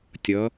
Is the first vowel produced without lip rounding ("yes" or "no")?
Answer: yes